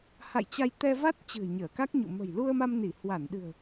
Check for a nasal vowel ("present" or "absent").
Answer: absent